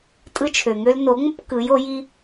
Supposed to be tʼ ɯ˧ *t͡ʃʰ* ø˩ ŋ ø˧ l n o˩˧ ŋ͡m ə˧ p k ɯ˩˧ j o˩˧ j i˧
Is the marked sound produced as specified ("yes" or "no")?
yes